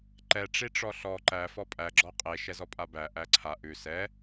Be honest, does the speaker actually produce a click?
yes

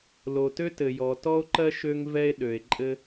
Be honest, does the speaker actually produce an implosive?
yes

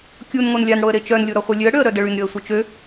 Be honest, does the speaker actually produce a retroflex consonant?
yes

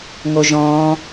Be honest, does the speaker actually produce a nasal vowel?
yes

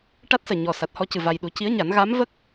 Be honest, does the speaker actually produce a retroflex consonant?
yes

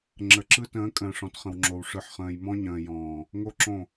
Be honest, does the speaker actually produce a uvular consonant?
yes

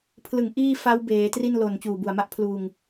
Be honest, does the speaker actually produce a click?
no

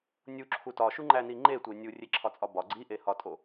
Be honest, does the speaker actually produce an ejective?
yes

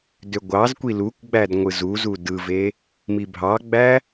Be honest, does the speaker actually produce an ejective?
no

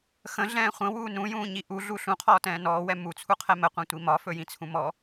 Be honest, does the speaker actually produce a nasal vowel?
yes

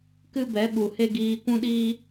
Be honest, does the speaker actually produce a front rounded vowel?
no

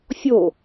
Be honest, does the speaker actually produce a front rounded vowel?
no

